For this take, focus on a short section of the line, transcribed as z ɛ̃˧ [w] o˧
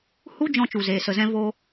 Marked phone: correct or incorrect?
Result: incorrect